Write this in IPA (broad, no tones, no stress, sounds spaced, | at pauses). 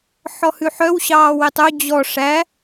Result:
ħ ɔ h ʉ ħ œ w ɕ ɑː w e tˤ ɵ d͡ʑ ɔ ʂ æ